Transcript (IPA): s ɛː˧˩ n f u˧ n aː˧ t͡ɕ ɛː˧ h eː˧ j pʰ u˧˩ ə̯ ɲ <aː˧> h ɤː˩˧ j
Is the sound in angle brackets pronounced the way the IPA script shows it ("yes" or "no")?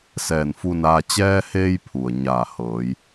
no